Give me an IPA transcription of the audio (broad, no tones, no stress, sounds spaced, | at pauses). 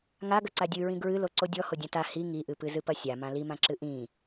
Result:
ŋ a ɡ ɐ ǀ a dʲ ɨ ɹ ĩ ɡ ɹ ɨ l o ǀ o dʲ ɔ h o dʲ ã t a h i ŋ i ʔ ɨ p ɨ z ɨ p ɐ sʲ a m ã l i m ã ǁ ɨ ʔ ĩ